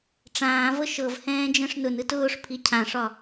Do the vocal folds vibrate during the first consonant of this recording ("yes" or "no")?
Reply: no